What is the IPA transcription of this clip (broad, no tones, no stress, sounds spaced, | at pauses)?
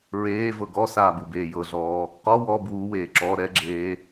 ɹ eː v ɤ ɡ ɔ s aː b u b eː j ɤ ɮ ɔː | q ɔ w ɔ b w u w eː ǁ ɔ ɾ ɛ ɡ͡ǁ eː